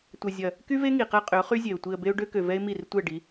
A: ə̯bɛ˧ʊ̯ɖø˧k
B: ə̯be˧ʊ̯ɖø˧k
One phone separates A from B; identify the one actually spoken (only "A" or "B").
B